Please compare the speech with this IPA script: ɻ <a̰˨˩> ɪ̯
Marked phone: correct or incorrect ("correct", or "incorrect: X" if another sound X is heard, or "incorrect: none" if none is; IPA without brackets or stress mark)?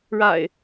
correct